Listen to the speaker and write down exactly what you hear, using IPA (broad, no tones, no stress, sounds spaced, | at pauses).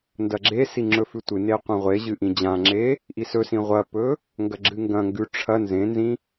n d ɐ ɡ͡ǁ e s i ŋ͡ǁ ɵ f ʉ tʷ ɨ n e qʷ ɐ̃ ʁʷ e ʑ ɨ ʔ ĩ d͡ʑ ã ŋ͡ǁ e | ʔ i s ɵ s ĩ ʁʷ ɐ p ɵ | ŋ ɡ ɐ ɡ͡ǁ ɨ ŋ ɡ ɐ̃ ŋ ɡ ʉ ʈ͡ʂʰ ɐ n z ẽ n z ĩ